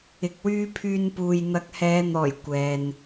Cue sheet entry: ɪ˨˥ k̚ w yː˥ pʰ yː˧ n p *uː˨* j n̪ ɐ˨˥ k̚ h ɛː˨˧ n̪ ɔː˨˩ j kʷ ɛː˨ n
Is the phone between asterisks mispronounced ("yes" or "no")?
no